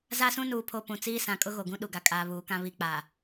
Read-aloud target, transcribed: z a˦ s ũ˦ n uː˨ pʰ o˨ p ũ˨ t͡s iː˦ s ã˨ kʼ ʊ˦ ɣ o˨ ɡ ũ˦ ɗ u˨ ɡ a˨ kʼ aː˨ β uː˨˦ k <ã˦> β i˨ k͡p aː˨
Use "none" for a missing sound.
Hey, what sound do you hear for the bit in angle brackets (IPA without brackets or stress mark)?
ã˦